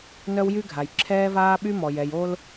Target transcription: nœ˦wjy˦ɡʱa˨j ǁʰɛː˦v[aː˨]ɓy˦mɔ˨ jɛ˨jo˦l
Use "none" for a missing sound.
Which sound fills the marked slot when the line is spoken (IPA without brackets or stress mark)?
aː˦